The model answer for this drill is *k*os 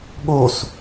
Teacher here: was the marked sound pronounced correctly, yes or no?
no